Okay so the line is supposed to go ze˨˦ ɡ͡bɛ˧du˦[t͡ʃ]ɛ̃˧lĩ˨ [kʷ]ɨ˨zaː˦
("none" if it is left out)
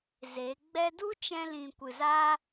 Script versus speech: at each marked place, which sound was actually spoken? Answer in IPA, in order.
t͡ʃ, kʷ

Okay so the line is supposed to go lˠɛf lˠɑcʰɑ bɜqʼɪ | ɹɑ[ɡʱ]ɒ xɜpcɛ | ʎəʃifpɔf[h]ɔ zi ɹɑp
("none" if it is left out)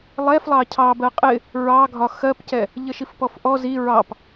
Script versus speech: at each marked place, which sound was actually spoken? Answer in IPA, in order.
ɡʱ, ʔ

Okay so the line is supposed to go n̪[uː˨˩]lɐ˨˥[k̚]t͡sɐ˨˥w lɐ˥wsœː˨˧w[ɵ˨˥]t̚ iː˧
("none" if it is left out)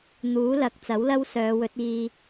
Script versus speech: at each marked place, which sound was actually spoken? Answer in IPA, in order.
uː˨˥, k̚, ɵ˨˥

